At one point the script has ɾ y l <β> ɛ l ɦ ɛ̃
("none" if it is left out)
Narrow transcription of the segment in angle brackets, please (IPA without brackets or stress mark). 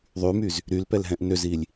p